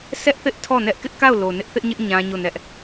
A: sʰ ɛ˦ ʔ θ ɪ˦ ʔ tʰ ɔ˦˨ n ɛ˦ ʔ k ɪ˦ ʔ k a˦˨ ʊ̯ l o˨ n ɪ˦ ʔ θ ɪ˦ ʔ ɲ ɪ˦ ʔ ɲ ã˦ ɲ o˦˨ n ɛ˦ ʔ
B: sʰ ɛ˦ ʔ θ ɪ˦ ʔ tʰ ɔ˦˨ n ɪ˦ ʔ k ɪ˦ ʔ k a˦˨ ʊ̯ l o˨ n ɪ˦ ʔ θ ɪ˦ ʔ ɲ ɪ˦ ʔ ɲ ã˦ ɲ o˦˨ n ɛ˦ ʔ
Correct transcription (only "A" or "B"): A